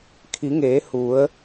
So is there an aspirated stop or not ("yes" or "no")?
yes